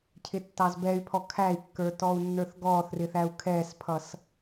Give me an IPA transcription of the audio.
cʰ ɪ tː ɑ z b ɛ y̯ pʰ ɔ kʰ æ i̯ kː ə˞ t ɔ u̯ nː ə˞ θ ɡ ɔː θ r ɪ θ æ u̯ kʰ ɛː s pʰ ʌ s

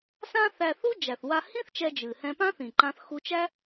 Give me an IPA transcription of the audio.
s ã˥ θ æ˧ θ u˥ d͡ʒ æ˩ θ w a˧ h ĩ˥ θ t͡ʃ ɛ˧ d͡ʒ ɨ˩ h ɛ̃˧ p ã˥ θ ĩ˩ ǃ ã˧ θ x u˧ t͡ʃ æ˥

